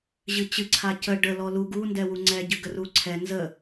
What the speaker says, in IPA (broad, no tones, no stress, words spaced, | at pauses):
ʑɨt͡ɕɨ ǀʰacə ɖəlɔ lu ɡu ndɛwuŋ͡ǀɛ ɟɨɡəruǀʰɛ nzə